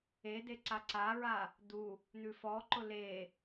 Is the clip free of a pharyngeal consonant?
yes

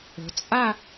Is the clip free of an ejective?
no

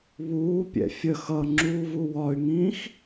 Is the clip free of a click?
no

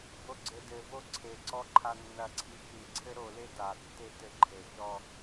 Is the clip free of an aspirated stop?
no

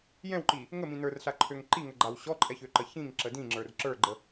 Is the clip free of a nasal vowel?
no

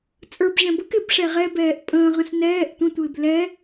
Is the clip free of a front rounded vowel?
yes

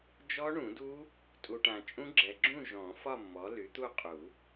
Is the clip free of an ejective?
no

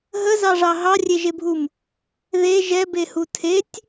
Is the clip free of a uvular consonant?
yes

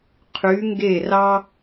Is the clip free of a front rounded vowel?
no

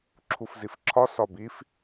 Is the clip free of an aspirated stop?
no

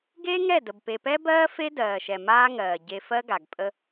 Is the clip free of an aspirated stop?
yes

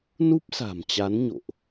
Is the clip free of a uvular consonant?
yes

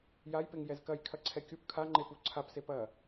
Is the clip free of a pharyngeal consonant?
yes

